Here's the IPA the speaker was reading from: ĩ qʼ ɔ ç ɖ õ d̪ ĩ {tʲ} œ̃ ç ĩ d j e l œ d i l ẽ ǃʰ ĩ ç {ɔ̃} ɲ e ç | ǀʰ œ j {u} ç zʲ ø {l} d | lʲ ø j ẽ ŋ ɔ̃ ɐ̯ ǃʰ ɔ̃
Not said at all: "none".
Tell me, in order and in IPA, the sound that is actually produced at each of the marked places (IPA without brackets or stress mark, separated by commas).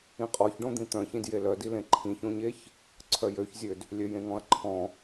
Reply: t̪, õ, ø, none